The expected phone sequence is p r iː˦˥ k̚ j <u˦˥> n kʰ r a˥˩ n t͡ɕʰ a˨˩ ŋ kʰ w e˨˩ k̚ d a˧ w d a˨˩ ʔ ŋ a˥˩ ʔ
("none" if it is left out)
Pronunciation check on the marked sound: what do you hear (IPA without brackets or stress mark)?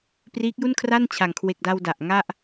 u˥˩